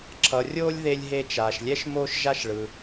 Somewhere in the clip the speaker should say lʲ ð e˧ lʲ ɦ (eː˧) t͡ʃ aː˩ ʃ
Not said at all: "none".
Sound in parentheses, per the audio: e˧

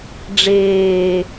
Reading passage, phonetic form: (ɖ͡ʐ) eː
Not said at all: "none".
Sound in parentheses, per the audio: ɖ͡ʐ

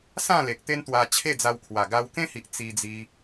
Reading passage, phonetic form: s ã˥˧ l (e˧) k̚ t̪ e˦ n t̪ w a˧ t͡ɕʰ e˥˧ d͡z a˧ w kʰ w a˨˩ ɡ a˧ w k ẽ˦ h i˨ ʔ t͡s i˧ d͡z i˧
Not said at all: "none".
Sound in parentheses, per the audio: e˨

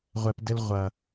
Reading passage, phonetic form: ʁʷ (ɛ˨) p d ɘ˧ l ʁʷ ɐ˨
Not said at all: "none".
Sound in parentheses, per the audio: ɛ˨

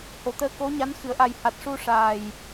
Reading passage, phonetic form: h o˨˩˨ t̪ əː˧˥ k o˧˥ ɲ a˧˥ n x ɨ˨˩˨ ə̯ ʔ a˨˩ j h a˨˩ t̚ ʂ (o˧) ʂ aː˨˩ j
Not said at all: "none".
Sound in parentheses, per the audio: u˧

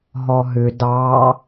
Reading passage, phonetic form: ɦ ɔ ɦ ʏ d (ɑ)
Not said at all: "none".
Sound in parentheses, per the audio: ɑ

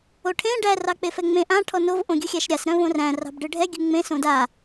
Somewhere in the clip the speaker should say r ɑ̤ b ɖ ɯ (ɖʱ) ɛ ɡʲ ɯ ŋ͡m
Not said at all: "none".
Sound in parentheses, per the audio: ɖʱ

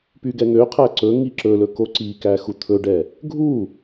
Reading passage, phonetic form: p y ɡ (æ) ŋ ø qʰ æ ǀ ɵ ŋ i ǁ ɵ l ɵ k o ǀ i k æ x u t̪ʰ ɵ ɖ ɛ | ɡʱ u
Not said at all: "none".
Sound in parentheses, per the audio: ɛ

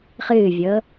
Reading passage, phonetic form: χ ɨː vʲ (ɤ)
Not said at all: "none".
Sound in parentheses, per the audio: ɤ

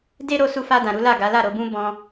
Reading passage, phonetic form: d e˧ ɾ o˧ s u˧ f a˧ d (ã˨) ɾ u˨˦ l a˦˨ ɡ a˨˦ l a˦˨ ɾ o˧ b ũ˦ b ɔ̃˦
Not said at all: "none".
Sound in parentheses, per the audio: ã˨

